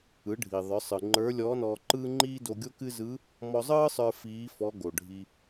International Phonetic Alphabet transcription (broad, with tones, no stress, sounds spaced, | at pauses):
ɯ˩˧ ɖʱ i˩ ðˤ ə˞˩˧ sˤ ɯ˩ ŋ͡ǃ ə˞˧˥ lʲ ɔː˧˥ n ɔː˧ ǃ ɯː˥ ŋ͡ǃ iː˥ d o˧ ɡʲ o˥ k ɨ˥ z ɯ˧˥ | m ɔ˧ zˤ ɯː˥ sˤ ə˞˧ f iː˧˥ f ɔ˧˥ ɡ o˩ ɖʱ i˧